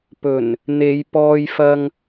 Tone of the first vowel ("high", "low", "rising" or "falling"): low